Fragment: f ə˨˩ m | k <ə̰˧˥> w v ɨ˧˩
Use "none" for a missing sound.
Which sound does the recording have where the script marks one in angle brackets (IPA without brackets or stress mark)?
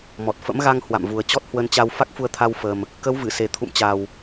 ə˨˦